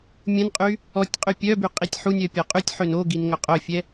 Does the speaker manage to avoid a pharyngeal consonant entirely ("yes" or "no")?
no